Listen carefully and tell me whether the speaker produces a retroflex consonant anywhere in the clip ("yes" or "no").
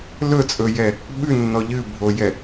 no